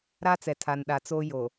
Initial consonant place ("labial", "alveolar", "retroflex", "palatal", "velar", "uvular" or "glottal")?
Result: alveolar